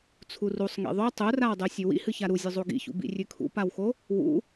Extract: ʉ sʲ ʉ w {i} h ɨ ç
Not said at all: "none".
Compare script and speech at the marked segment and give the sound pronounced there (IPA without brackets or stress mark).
ḭ